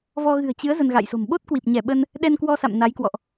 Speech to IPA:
vɔ˧ɣɨ̤˨˩ə̯t͡ɕɨ˨˦ə̯ zə˧nɣa̰˧˨jso̤˨˩m ɓo˦˥t̚kwi˨˩p̚ɲɛ˧˩ ɓə˧n | ɗɛ˧nkwɔ˧sa̰˧˨m na˨˦jkwɔ̰˧˨ʔ

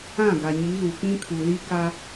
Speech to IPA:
ã˦˨ ɡa˨ɲi˨˦ɣu˨ k͡pĩ˦kʰu˨li˦ ka˦

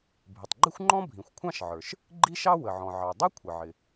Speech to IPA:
bʱɪ˩tˤɡ͡ǃɪ˥xʷŋ͡ǃɔ̃˥ bʱĩ˩xʷkʷʰɑ̃˥ʃʕə˞˩ʃ | ɡ͡ǃi˥ʃɑ˥ wə˩ʕɔ̃˩ʕɑ˩dˤɛ˥ kʷʰə˩ʕɪ˩

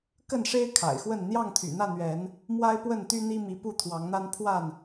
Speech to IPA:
kə˥˨nʂe˦ɪ̯ kʰa̰˨˩ɪ̯xwə˥˨n n̪jɑ˥˨ŋt̪ʰy̰˨˩n̪ä˥˨ n̪ɥɛ˨˦n | mwa˦ɪ̯pwə˥˨nt̪y˦n̪i˦ mi˨˦pu˥˨t̪ʰwɑ˨˦ŋn̪a˦n pʰwa˥˨n

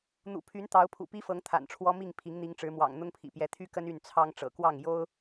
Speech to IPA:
n̪ṵ˨˩pʰy˨˦n t̪ɑ˨˦ʊ̯pʰṵ˨˩pi˦fɤ˨˦ŋ t̪ʰa̰˨˩nʈ͡ʂʰwɔ˦mi˥˨ŋ pʰi˨˦ŋn̪i˨˦ŋʈ͡ʂɻ̩˨˦mwɑ̰˨˩ŋ n̪ʊ˦ŋpʰḭ˨˩pjɛ˨˦ t̪ʰy˦kə˦n y˥˨nt͡sʰɑ˦ŋ ʈ͡ʂɤ̰˨˩kwɑ˥˨ŋ jo˦ʊ̯

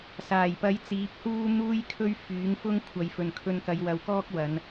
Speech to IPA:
saː˨˩jpɐ˨˥j t͡siː˨˥p̚huː˥ n̪uː˥jkʰɵ˥ɥ fyː˨˥ŋ fʊ˥ŋ kʷʰɐ˨˧jfɵ˨n kʰɵ˧nkɐ˨˧jwɐ˨wkɔː˥k̚ wɐ˨˧n

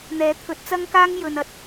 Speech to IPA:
n̪ɛː˨˥t̪ʰɵ˨˥t̚t͡sɐ˥ŋkaː˥ŋ jɵ˨nɐ˧t̚

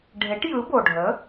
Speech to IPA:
ɖʱe˩˥ʈjɯ˩˥bo˩ɖʱə˩˥

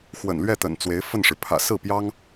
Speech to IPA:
xwə̰˨˩nlɥɛ˥˩t̪ə̰˨˩n t͡swe˧˥ɪ̯ fə˥˩nʂɻ̩˩ pʰä̰˨˩sɹ̩˥˩pjɑ˥ŋ

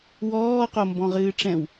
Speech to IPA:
wɔː qombɔ̃ʁɨːʈ͡ʂɛ̃w

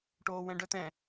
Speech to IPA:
ʈoːwɛ̃ɖœtɛ̃

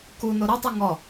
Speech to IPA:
ku noɾetˤi ŋɔ

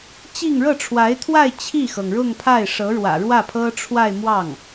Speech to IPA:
t͡ɕi˥˧ŋ ɻɤ˥˩ʈ͡ʂʰwa˧˥ɪ̯t̪ʰwa˥˧ɪ̯ t͡ɕʰi˥˩xɤ˩ŋɻʊ˥˧ŋpʰa˥˩ɪ̯ ʂɤ˧˥ɻwä̰˨˩ɻwä˥˩pʰɤ˥ ʈ͡ʂʰwa˥˧ɪ̯ mwɑ˥˩ŋ

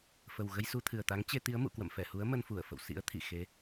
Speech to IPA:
fə˨˩w ɣə˧jsu˧t̪ʰɨ˨˩ə̯t̪a˨˦ŋ t͡ɕe˧t̪i˨˦ə̯ mṵ˧˨kwə̰˧˨mfɛ˧˩hu˨˦ə̯ mə˧nfu˧˩ə̯fə̰˧˨w sḭ˧˥ə̯ t̪ʰḭ˧˨xe˨˦

